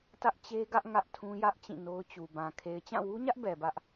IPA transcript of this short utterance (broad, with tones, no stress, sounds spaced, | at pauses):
t ä˦ ʔ t͡ɕ e˦ ɡ ä˦ ʔ ŋ ä˦ ʔ tʰ ũ˦ j ä˦ ʔ t͡ɕ ĩ˦˨ n o˦ ʊ̯ t͡ɕ u˨ b ã˨ kʰ e˨ ɪ̯ t͡ɕ ã˦˨ w u˦ ɲ ä˦ ʔ b ɛ˨ b ä˦ ʔ